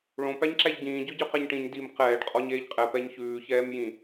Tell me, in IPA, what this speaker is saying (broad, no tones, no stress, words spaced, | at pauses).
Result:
ɭõ pæɲǁæʎɟĩː ɟøɟøqɛɲʈĩɲ dim qɛːɖ qʼɔɲeːʎqʼɛ pɛɲçʉː çɛːmjĩ